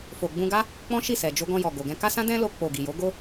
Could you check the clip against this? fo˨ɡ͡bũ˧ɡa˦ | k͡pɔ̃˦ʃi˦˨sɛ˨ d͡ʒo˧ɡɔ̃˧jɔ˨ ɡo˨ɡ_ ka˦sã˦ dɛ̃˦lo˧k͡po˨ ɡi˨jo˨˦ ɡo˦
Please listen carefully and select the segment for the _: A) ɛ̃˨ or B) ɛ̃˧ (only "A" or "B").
B